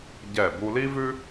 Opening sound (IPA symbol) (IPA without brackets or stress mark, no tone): ɟ